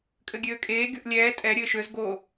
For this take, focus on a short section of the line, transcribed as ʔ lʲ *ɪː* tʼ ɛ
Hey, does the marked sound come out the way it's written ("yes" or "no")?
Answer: no